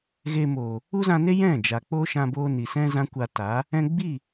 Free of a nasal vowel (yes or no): no